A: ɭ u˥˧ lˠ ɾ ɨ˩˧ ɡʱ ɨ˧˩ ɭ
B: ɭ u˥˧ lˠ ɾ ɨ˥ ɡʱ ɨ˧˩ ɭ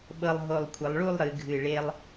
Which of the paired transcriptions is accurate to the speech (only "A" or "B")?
A